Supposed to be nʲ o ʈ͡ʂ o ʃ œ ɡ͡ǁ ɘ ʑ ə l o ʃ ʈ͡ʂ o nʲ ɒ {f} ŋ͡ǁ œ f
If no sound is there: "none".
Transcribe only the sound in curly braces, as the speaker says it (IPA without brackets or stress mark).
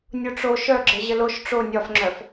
f